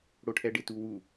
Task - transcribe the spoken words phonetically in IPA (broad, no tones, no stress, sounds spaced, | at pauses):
ɽ o ʈʰ ɛ ɖ ɪ t u w u